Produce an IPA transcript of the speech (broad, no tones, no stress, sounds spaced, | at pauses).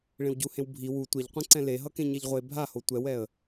ɭ ẽ w ɟ u h ẽ w bʱ i w u tʷ ɛ ʎ qʷ ẽ ǀ ɛ̃ l e ɦ ʌ k ẽ ɲ ɛ ʎ ʁʷ e bʱ a h o tʷ ɛ w ɛ ə̯